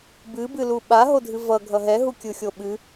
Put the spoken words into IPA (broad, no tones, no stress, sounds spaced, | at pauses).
b ɨ b ɨ l u ɓ a ɦ o dʱ ɨ v ʌ ɡʱ ʌ ɦ ɛ ɦ u kʲ ɯ xʲ o ɓ ɨ